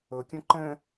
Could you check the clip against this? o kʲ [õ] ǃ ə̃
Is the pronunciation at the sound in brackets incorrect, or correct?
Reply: correct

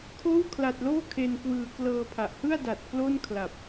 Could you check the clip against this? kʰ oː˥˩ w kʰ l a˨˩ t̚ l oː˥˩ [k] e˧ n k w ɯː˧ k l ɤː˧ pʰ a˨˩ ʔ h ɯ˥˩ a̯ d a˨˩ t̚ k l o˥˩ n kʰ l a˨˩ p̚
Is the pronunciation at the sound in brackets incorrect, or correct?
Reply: incorrect: kʰ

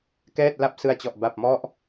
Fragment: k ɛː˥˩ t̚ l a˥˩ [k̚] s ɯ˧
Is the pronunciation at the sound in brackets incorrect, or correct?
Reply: incorrect: p̚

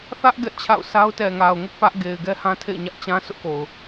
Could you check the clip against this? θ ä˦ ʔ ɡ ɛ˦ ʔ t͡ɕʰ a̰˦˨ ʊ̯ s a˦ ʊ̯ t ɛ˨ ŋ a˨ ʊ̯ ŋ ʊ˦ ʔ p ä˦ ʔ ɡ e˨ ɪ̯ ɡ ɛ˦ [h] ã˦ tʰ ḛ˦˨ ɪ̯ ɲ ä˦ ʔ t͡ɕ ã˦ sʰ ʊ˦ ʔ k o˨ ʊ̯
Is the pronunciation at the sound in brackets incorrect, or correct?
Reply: correct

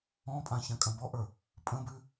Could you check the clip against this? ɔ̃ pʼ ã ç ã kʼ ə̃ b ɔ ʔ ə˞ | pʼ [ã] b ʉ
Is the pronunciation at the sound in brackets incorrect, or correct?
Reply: incorrect: ə̃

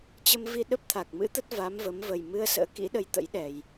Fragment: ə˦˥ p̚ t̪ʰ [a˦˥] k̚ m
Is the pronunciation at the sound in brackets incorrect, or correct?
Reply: incorrect: a˨˩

